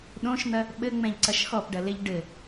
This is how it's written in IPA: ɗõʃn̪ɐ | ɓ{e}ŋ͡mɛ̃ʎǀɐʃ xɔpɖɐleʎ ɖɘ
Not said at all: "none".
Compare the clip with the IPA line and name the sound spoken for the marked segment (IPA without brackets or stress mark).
ɘ